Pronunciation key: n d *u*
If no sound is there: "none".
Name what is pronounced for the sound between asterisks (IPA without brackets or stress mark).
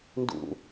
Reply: ṵ